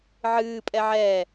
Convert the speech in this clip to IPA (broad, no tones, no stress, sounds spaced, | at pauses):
ʕ ɨː pʼ ɛ ʕ ɛː